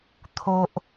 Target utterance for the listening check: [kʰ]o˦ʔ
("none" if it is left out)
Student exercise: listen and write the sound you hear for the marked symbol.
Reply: t̪ʰ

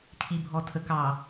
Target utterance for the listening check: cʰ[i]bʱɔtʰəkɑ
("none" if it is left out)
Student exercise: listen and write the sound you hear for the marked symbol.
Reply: i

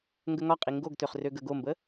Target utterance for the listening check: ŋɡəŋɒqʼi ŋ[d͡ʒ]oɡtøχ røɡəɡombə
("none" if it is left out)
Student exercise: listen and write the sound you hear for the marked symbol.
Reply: ɡ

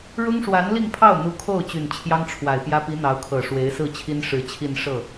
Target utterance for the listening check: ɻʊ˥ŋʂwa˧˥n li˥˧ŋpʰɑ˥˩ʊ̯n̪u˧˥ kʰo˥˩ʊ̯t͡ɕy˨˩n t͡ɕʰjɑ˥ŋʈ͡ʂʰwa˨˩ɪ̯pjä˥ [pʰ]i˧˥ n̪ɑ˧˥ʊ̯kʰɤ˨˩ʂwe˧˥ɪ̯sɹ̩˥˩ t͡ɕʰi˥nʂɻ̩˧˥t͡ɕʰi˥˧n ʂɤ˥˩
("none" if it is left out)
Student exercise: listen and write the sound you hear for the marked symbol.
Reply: p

